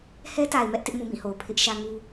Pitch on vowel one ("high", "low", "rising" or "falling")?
high